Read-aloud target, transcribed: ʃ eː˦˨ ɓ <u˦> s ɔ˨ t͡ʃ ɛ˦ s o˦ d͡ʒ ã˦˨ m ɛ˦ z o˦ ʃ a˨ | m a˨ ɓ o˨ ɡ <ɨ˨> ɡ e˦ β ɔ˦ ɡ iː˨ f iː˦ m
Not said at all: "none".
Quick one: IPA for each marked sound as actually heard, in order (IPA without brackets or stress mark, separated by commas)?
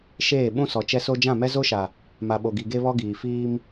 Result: ũ˦, i˨